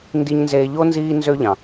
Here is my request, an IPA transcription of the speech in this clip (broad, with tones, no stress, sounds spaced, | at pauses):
n d i˦ ɲ n z eː˦ ʎ o˥ n z iː˦ n z ø˦ ʎ ɑ̃˩